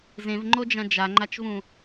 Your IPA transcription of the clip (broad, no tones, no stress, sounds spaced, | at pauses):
z ẽ v ŋ͡ǃ o d͡ʒ ã d͡ʒ a ŋ͡ǃ a t͡ʃ v ũ